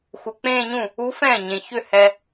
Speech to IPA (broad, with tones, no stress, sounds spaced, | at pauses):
x u˨ k͡p ẽː˥˧ ɲ ũ˥˩ | u˦˥ f ɛ̃ː˥˩ ɲ ẽ˨ ç ʏ˥˩ h ɛ˨